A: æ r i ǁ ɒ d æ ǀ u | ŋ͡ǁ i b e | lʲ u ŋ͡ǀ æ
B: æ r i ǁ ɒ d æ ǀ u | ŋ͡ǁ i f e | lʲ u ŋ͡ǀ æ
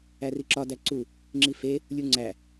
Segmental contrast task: B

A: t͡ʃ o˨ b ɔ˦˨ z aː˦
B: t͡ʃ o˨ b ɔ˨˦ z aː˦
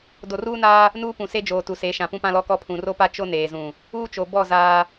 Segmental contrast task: A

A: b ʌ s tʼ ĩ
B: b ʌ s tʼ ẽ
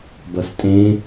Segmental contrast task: B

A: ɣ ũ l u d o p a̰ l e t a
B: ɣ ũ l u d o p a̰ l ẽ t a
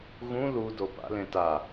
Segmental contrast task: B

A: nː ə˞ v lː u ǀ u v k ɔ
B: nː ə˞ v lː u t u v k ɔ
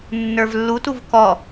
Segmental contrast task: B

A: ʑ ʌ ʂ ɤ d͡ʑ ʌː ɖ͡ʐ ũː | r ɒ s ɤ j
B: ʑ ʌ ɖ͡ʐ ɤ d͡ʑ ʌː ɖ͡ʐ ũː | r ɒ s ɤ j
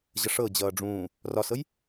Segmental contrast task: A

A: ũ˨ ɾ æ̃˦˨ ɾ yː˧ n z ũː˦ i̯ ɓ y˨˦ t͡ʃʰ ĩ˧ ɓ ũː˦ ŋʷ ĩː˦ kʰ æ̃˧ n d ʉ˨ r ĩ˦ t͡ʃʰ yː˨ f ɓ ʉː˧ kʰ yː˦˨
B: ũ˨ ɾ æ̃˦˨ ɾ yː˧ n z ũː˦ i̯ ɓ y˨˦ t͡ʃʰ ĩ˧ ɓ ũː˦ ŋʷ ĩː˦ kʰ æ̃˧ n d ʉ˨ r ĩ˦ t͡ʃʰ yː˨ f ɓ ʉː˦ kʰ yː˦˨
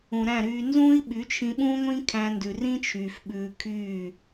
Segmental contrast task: A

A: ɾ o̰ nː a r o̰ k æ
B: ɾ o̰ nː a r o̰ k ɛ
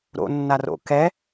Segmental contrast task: B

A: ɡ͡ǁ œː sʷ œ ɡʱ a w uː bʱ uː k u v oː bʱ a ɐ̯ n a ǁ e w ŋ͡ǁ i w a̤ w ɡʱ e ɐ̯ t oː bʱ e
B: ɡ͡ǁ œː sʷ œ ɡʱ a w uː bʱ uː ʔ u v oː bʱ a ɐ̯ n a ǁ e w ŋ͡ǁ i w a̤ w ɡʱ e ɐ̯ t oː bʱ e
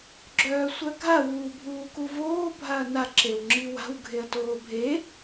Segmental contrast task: A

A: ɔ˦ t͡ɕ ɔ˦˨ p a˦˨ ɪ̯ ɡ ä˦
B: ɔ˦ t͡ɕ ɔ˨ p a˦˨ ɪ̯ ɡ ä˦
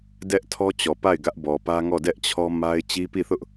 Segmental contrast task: B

